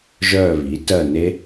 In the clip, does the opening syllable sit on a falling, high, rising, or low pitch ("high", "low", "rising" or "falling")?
falling